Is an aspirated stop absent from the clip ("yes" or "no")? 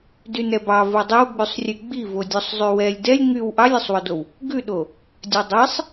yes